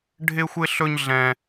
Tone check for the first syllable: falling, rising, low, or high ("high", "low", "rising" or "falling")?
high